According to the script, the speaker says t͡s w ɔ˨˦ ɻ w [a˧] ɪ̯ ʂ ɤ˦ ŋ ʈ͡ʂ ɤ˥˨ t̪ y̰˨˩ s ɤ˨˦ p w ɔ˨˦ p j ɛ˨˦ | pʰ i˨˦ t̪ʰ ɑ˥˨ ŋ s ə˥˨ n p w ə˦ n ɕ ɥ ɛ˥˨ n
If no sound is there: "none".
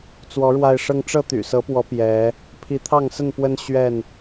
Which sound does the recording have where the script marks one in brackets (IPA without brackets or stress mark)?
a˧